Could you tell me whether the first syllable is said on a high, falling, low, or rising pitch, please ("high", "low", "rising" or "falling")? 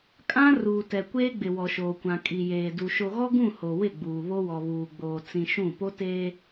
high